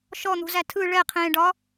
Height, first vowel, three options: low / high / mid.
mid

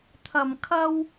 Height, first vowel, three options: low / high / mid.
low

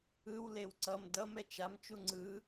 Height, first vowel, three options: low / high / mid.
high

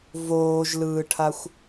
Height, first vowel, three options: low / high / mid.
mid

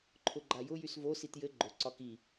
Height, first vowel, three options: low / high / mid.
high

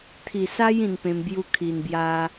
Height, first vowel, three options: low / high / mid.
high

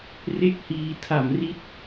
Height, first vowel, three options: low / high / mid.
mid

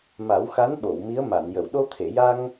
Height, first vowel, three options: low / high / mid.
low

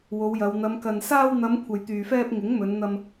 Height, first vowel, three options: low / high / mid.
mid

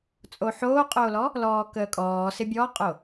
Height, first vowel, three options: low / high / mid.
mid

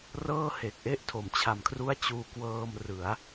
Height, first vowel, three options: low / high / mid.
mid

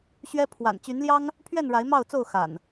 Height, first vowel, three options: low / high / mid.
mid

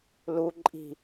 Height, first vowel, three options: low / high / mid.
high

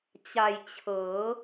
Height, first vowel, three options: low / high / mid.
low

